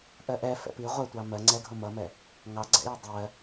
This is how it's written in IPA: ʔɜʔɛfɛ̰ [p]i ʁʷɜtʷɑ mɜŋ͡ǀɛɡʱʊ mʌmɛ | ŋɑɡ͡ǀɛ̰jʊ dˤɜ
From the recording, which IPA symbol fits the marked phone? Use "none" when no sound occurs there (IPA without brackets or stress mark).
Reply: p